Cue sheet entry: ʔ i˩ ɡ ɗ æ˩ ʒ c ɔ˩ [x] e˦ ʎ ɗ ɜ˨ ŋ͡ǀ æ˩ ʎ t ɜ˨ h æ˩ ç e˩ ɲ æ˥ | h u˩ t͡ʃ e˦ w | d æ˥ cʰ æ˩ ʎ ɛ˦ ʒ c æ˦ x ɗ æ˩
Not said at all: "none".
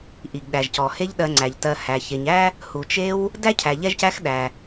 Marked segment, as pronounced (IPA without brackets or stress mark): h